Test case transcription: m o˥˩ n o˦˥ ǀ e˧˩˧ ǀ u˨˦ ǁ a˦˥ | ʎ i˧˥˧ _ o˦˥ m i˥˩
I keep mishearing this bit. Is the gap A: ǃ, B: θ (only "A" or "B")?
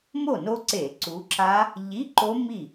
A